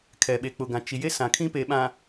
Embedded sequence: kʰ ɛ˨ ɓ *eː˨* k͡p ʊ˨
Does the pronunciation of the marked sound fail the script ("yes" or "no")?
yes